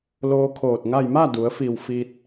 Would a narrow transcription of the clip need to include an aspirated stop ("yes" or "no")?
yes